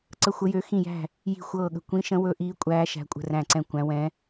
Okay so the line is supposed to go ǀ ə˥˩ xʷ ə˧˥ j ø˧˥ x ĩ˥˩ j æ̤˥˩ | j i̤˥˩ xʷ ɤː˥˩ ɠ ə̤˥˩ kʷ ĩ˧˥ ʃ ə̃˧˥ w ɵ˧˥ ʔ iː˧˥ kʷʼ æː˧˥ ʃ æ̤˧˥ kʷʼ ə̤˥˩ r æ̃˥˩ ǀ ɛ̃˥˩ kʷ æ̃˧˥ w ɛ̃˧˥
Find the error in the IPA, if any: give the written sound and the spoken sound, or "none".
none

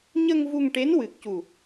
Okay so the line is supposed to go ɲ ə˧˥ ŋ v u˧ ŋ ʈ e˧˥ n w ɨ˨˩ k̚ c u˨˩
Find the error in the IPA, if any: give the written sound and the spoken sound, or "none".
ə˧˥ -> ə˧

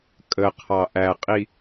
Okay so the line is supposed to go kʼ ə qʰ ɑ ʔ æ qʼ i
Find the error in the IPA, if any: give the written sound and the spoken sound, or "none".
none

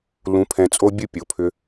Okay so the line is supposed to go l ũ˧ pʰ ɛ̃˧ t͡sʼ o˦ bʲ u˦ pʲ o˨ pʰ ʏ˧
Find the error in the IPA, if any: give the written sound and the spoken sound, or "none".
none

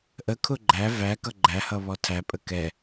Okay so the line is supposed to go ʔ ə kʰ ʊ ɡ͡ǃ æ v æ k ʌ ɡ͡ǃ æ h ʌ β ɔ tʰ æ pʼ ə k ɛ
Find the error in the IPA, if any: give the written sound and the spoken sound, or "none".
none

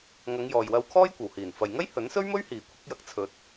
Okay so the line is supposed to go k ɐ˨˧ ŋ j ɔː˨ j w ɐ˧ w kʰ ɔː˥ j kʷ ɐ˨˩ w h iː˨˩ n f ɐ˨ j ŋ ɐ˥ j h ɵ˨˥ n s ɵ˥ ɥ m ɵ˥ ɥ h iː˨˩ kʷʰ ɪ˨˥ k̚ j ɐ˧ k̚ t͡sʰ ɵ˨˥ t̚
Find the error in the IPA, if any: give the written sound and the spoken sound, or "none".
k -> ŋ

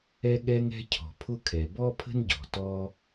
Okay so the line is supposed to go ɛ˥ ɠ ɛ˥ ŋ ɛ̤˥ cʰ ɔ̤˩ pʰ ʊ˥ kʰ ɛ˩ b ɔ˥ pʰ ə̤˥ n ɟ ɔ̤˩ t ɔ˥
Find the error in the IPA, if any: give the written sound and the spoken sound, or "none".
none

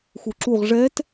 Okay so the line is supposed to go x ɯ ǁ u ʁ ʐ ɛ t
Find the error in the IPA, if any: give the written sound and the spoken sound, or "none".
ɯ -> u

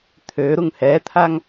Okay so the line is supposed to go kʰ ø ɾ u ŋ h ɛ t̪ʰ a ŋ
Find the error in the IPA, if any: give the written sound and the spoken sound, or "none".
kʰ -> t̪ʰ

